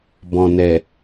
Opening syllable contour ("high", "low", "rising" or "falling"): low